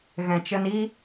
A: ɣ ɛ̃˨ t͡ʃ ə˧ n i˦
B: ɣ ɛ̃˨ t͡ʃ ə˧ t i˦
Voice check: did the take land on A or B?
A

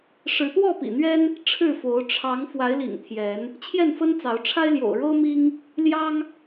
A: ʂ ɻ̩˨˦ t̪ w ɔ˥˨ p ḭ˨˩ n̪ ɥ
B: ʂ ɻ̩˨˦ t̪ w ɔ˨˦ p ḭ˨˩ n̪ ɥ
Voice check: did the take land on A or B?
A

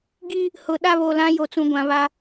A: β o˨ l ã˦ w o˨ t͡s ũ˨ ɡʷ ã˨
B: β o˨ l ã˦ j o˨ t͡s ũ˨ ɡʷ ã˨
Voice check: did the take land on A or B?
B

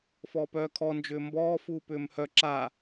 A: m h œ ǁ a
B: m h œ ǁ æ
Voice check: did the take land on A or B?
A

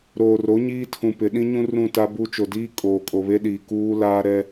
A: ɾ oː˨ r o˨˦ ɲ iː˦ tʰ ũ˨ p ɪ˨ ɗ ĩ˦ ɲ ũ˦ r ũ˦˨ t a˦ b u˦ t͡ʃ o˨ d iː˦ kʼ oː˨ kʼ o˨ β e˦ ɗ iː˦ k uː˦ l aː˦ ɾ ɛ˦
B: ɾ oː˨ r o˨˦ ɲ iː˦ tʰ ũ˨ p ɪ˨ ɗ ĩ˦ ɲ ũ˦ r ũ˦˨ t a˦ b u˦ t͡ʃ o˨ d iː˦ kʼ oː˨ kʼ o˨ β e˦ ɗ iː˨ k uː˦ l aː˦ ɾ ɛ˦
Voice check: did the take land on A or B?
B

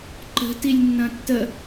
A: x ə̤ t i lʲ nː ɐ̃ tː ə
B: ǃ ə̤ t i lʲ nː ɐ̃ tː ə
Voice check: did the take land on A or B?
B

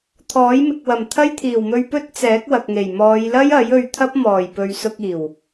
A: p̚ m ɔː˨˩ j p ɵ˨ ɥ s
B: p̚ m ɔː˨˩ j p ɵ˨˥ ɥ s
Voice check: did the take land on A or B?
A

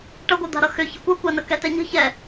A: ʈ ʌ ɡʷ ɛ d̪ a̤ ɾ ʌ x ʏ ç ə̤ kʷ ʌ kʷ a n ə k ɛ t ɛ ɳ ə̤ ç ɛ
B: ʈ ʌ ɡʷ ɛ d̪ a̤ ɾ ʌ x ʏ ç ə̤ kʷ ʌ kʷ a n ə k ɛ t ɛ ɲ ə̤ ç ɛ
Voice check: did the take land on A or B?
B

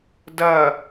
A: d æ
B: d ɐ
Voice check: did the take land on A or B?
B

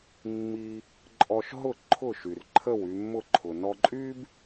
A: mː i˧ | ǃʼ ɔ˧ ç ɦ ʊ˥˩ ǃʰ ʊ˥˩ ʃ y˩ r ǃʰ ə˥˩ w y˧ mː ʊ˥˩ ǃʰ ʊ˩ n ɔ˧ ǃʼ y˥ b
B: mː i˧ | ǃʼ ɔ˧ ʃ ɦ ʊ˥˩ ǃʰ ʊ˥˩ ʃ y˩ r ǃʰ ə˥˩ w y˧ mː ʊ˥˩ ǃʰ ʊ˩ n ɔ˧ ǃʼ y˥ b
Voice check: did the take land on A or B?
B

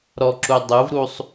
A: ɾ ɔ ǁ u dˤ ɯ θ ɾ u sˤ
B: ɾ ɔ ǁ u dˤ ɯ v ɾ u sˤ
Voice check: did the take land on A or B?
B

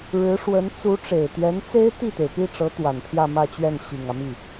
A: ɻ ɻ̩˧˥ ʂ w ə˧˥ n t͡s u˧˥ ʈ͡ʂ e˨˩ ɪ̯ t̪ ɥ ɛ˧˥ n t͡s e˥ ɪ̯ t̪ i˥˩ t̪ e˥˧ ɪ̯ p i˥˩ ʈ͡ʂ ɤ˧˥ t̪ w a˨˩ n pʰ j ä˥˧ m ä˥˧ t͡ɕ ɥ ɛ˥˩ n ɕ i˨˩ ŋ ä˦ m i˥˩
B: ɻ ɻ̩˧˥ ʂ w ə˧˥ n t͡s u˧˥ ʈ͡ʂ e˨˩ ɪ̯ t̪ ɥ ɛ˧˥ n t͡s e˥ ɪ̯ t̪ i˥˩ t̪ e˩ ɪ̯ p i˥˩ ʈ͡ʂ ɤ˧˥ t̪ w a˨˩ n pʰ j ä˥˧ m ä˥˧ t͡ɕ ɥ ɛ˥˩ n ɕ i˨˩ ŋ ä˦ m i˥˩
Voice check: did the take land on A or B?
B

